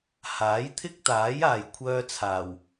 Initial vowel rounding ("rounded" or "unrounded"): unrounded